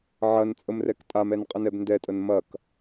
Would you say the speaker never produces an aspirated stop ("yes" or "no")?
yes